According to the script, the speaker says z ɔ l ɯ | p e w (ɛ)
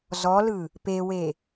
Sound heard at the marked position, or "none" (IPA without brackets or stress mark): e